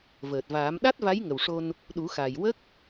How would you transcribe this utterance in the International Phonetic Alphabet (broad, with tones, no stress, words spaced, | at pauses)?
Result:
vəː˨˩t̚vaː˨˩˦m ɗa˦˥t̚va˧˥jŋə˨˩wʂo˧n | ɗu˨˩˦xa˨˩jwə˦˥k̚